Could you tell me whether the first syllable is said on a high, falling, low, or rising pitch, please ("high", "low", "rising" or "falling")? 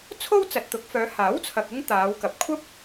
high